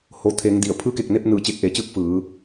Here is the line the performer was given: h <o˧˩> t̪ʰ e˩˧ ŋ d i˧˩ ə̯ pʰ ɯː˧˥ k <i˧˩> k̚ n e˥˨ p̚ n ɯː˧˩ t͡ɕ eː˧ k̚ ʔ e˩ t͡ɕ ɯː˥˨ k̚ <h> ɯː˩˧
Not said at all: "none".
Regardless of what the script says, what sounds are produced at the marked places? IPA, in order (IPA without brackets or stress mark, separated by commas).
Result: o˩, e˧˩, f